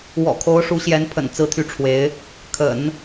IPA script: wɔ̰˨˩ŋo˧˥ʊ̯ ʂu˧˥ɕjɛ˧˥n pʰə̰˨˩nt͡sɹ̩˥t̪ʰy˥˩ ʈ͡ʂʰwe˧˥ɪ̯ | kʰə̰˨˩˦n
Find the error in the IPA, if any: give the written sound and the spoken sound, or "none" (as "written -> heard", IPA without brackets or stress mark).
ŋ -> kʰ